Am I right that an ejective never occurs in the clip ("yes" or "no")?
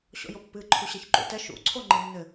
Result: yes